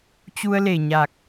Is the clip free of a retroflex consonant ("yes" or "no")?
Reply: yes